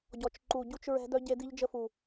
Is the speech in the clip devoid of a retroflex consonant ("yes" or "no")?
yes